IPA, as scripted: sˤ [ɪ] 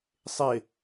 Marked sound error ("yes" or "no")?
no